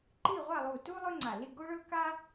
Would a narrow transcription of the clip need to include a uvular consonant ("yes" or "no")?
yes